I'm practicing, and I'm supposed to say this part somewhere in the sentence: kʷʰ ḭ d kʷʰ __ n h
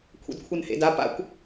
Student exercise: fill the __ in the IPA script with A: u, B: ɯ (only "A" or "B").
B